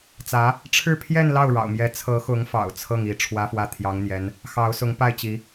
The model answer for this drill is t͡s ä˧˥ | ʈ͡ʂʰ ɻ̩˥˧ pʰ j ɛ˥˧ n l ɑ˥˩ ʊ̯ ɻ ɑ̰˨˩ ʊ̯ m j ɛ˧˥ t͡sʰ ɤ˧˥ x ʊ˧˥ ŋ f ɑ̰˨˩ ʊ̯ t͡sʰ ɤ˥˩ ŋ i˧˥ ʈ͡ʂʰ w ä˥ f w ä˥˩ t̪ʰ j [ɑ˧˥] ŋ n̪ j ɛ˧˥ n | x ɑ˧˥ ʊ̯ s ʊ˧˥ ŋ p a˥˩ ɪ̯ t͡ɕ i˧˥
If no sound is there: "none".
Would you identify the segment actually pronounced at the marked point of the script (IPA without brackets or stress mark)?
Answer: ɑ˧˥